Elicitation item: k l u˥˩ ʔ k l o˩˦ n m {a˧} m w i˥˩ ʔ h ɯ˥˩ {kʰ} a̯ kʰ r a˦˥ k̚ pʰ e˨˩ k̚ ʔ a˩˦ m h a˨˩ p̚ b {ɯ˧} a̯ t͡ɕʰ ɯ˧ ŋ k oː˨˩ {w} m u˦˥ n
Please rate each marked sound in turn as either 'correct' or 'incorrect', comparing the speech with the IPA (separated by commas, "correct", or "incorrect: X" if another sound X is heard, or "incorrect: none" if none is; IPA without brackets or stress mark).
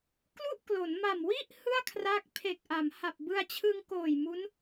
incorrect: a˨˩, incorrect: none, correct, incorrect: j